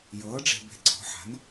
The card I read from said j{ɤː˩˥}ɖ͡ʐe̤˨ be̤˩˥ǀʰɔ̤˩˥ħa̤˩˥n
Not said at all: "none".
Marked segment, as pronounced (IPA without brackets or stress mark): ɤː˩˥